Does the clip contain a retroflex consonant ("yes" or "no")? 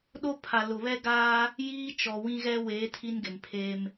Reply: no